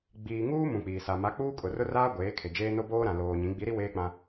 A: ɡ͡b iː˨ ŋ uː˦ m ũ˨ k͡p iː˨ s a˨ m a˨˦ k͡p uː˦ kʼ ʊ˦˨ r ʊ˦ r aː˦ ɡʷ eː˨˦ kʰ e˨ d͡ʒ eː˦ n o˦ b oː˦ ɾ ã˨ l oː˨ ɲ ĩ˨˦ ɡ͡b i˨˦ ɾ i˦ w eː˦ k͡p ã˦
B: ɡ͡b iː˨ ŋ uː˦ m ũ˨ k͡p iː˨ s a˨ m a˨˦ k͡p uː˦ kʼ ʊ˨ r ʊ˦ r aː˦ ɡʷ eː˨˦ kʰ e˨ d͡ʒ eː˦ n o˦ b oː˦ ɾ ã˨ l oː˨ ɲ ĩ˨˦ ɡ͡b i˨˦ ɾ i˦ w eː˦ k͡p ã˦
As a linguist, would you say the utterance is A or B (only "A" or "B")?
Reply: B